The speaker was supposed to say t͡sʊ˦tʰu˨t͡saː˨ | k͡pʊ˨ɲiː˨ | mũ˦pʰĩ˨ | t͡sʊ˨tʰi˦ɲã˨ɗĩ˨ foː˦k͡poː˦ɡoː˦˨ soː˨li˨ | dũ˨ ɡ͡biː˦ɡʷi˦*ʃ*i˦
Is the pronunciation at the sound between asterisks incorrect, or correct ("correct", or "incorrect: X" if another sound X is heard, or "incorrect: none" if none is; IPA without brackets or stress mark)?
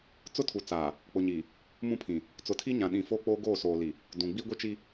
incorrect: t͡ʃ